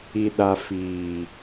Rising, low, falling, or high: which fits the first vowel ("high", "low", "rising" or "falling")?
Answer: low